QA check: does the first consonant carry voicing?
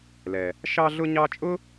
yes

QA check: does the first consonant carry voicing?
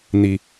yes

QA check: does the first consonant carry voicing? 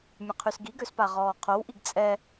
yes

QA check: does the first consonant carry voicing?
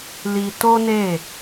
yes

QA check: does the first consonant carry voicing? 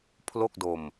no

